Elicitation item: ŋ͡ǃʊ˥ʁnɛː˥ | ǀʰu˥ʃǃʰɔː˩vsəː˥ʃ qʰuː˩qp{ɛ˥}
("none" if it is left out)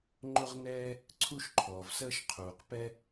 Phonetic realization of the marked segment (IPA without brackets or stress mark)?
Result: ɛ˥